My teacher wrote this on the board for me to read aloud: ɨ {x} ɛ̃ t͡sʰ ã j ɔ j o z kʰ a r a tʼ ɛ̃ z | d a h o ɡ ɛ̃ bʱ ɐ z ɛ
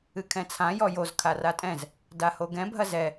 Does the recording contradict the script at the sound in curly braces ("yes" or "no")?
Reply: yes